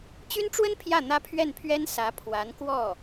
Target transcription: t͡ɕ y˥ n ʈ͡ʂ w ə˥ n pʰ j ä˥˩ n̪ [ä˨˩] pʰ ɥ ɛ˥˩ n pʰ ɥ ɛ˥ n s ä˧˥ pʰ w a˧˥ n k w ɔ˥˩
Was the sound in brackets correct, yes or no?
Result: no